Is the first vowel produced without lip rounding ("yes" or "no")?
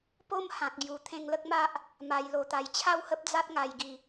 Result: no